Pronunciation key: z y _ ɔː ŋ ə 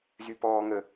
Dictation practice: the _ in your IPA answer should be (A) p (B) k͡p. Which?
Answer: A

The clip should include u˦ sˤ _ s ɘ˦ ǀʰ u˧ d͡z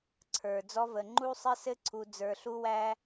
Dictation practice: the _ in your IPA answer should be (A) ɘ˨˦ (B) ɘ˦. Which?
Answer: B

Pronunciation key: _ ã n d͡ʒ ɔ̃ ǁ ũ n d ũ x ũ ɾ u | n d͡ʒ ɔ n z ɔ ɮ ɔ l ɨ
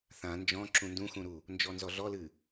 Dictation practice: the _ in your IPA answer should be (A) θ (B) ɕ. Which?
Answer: A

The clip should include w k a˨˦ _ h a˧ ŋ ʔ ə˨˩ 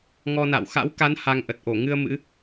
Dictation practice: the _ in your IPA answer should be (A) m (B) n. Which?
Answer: B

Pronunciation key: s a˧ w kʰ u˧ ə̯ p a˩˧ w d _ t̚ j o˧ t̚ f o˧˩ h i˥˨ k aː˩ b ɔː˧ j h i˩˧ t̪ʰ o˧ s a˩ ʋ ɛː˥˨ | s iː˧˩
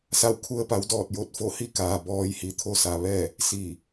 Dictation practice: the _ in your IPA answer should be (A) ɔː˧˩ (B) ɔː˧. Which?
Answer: A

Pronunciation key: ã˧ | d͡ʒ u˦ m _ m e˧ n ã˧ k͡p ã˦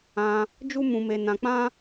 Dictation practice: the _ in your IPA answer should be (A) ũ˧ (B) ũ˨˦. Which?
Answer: A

